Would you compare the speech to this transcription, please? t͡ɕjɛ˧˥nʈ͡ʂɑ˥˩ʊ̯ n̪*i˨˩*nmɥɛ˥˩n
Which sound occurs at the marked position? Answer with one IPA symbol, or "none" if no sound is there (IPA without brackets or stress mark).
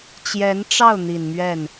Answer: i˨˩